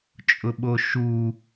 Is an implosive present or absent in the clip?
present